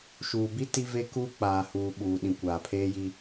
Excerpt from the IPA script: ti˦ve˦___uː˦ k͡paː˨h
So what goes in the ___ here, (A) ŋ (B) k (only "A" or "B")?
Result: B